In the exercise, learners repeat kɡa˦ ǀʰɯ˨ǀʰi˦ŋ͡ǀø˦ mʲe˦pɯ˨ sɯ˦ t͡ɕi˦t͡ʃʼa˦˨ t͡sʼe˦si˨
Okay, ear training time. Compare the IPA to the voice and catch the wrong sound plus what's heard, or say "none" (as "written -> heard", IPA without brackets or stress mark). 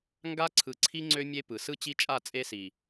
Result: k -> ŋ